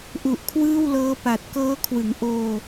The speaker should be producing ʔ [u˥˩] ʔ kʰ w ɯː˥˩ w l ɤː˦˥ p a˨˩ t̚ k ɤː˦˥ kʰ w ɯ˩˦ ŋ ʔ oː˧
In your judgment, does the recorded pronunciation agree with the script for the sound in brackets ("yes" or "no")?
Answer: no